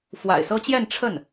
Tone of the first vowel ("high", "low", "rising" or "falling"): low